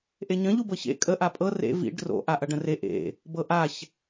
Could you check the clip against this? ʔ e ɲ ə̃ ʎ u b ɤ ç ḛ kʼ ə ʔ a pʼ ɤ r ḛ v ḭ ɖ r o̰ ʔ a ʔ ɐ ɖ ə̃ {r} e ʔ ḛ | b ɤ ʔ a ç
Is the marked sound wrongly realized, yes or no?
no